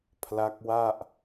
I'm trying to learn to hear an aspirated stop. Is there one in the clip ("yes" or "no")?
yes